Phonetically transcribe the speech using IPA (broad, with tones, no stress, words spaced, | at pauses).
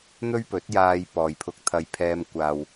n̪ɵ˥ɥpɵ˨˥t̚jaː˧j pɔː˨jpʰʊ˧k̚t̪ʰɐ˧jpʰɛː˧m kʷaː˨w